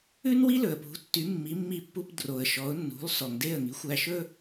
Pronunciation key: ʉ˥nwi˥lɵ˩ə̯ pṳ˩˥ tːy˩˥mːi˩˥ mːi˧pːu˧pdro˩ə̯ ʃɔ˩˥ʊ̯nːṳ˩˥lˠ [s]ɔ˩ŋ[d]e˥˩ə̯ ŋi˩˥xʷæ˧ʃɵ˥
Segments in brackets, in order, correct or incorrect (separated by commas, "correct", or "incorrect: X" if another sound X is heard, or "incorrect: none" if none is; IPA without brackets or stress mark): correct, correct